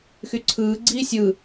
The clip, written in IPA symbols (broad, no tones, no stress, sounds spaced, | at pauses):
x y ǀʰ ɯː ɡ͡ǀ iː sʲ ɯ